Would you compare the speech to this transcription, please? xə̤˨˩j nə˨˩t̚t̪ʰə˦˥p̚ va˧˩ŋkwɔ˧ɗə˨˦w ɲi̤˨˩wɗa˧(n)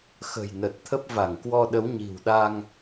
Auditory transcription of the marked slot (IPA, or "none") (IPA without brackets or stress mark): ŋ